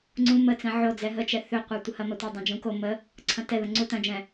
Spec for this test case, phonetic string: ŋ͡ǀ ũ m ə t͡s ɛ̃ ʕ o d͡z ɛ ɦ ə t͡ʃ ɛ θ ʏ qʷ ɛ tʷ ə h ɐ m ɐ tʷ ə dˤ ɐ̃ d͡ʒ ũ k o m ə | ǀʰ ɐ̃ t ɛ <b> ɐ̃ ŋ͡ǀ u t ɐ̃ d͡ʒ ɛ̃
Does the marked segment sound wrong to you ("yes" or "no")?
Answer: yes